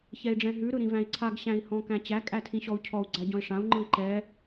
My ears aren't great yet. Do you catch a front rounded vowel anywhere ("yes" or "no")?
no